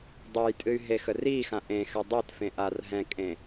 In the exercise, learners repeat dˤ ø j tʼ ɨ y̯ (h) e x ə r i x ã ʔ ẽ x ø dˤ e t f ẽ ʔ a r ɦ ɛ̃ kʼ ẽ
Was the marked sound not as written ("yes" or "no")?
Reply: yes